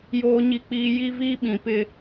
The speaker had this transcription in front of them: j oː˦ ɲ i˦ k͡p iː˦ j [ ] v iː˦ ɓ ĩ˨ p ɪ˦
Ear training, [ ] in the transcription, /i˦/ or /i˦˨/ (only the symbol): i˦